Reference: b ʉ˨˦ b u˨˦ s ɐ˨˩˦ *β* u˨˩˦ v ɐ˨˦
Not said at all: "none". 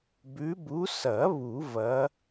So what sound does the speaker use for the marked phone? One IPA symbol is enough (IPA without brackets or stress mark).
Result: β